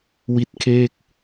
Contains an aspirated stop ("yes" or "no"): yes